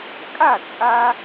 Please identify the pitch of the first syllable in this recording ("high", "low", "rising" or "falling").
falling